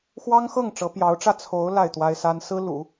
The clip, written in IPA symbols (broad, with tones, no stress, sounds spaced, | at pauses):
x w ɑ˥ ŋ x ɤ˥˩ ŋ ʈ͡ʂ ɤ˧˥ p j ɑ˧˥ ʊ̯ ʈ͡ʂ ä˥˩ t͡sʰ o˧˥ ʊ̯ l a˥˩ ɪ̯ t̪ w a˥ ɪ̯ s a˥ n s ɹ̩˥ l ṵ˨˩˦